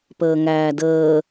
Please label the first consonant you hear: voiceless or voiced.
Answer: voiceless